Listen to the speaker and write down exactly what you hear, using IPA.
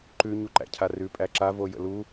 ǃʉ ɲuǃæ̰cʰarʉ pʼæǁa vojə̰lu

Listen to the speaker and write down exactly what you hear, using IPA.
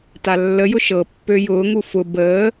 talːəjʊ ʃɤpːø jʊːŋu fʊ bəː

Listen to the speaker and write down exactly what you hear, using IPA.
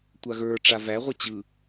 tʷaɣə˞ ʈ͡ʂavæʁʷɘ t͡ɕɯ

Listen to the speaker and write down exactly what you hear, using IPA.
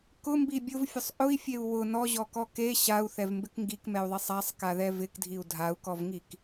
kʊmbi bʲʊvfʲʊsˤ ʔʊi̯fʲeu̯ wʊ nɔʑɔkɔ ke ɕau̯θɛvmbɪk ŋɡikmɛu̯ðˤisˤ asˤkaðɛ vɪkdʱiu̯ dʱau̯kɔvŋik

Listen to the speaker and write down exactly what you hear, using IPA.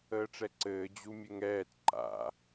əːʈ͡ʂɛǀɘː d͡ʑumʲɘŋɛːt ǃa̰

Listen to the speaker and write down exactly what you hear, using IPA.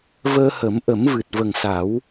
vəː˧ hə˨˩˦mʔə˨˩˦mvɨ˨˩t̚ və˨˩ŋsa˨˩˦w

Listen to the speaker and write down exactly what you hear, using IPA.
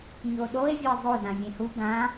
ɲoɗoe̯ vʲɵe̯zˤo zãvʲẽhu ɡã

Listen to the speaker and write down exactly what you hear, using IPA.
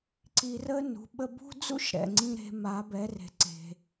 ǀi˧rə˥ nṳ˩˧ɓə˧bṳ˥d͡zṵ˥ʃ ɾɛ̰˩ŋ͡ǀĩ˧ ɾe̤˩˧ ma˩˧bɛ˩˧re̤˩ ǀe̤˩

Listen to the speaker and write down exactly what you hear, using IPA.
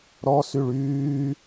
ɾɔsyɭ yː

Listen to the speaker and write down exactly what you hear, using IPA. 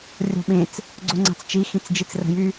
rʲo̤ɓẽt͡s | ɡ͡ǀoŋ͡ǀa̤t͡st͡ʃi xĩt͡sd͡ʒit͡srə̤jy

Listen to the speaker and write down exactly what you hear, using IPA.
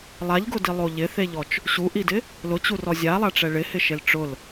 lˠaʎɡʊdilˠo ʎɪθeʎɔt͡ʃ | ɕuʔidɪ | lʊt͡ɕurɔ zʲalˠaʈ͡ʂɛ ɭɪhɪʃel ʈ͡ʂʊl

